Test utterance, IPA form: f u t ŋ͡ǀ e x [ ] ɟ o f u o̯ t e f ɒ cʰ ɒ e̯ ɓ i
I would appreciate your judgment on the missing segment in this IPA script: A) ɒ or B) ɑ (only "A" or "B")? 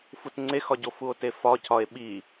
A